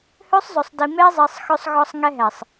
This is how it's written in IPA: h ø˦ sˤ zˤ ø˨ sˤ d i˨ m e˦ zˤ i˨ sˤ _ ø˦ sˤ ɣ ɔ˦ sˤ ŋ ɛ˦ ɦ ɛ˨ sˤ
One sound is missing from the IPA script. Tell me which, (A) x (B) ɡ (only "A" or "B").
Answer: A